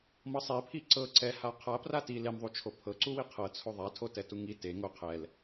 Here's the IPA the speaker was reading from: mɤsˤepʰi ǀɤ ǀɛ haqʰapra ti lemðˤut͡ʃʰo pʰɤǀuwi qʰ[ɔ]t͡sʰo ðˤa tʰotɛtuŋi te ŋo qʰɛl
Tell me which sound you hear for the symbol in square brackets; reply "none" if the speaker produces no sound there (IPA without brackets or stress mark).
ɤ